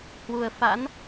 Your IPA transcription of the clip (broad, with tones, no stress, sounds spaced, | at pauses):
h w u˨˩ ə̯ f a̰˧˥ n